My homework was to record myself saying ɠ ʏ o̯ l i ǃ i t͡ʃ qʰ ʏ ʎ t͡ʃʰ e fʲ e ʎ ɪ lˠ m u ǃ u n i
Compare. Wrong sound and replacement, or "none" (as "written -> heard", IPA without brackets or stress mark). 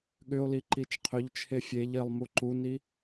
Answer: none